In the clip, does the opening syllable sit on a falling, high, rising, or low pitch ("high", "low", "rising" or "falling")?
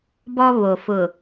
high